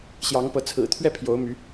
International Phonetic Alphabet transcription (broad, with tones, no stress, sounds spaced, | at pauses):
ɕ j ɑ˨˦ ŋ p ɤ˨˦ t͡sʰ ɹ̩˨˩ t̪ʰ ɥ ɛ˥˨ pʰ j o˨˦ ʊ̯ m y˨˦